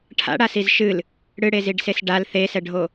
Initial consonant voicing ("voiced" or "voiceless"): voiceless